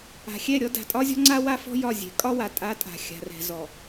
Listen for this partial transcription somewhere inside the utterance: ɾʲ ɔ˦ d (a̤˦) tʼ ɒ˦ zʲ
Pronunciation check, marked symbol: incorrect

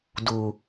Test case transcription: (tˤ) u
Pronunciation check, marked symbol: incorrect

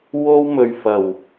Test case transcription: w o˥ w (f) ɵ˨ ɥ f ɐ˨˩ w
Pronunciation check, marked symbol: incorrect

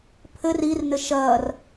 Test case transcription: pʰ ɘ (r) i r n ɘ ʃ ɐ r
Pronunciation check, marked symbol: correct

